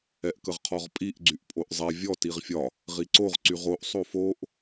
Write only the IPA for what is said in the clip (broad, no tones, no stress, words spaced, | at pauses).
ɛʔkəʁqʰɔʁpʼiʔ ɡ͡ǀyʔpʼoʔzˤɛ vʲɔ tiʁfʲɒ | ʁiǀoʁ ǀyʁoʔ sˤofoʔ